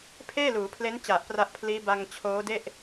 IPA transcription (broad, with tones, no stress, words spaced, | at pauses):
pʰeː˥˩luː˩˦pʰle˦˥n t͡ɕa˨˩ʔpra˦˥ʔpʰliː˦˥ ba˧ŋ t͡ɕʰoː˦˥de˥˩ʔ